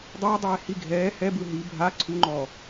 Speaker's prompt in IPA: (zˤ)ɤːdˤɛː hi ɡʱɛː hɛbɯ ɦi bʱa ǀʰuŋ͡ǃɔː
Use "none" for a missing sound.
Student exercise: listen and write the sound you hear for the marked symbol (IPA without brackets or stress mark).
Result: dˤ